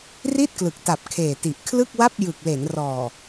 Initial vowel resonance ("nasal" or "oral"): oral